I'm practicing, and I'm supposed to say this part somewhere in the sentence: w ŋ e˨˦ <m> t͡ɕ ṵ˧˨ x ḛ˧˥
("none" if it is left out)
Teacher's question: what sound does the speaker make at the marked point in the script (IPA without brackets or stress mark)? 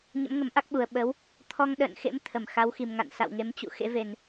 m